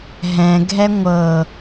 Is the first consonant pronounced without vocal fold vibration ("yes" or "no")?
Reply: no